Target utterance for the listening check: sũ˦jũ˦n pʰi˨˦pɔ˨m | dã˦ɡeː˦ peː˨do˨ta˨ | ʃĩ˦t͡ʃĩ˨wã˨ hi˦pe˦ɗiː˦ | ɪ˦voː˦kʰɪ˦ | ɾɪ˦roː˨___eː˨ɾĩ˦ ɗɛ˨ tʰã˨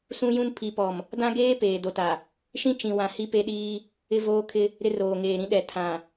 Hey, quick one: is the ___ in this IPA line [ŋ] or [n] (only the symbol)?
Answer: ŋ